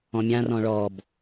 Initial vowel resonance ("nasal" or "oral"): nasal